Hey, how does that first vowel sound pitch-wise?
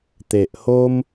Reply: low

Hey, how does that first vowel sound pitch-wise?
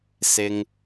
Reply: low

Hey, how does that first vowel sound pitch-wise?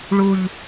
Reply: falling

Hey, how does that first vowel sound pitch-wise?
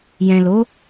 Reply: low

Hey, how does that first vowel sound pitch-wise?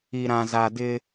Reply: low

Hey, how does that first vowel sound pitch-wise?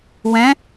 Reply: rising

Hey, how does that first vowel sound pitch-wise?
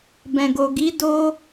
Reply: low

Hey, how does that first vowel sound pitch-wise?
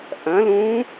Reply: rising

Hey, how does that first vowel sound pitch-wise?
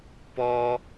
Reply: high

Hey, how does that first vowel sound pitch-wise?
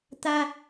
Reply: high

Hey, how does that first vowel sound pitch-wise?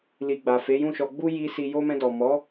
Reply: low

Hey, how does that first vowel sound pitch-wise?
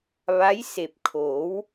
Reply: rising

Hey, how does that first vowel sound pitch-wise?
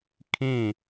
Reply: falling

